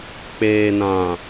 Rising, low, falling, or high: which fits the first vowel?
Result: low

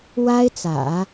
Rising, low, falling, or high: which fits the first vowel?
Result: high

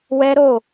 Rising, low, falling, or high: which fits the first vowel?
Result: high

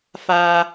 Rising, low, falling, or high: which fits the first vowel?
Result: high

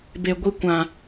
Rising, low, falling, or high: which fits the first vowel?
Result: low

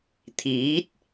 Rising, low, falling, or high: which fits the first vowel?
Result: rising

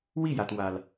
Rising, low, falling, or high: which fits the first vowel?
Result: falling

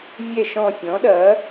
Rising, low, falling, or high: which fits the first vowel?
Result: falling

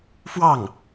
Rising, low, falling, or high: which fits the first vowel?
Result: falling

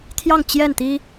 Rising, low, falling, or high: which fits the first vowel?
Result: falling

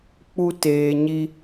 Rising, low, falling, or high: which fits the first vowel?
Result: high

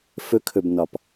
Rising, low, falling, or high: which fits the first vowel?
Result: rising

